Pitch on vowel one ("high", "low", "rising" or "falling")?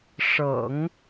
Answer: low